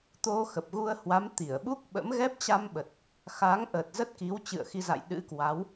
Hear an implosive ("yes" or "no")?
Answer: yes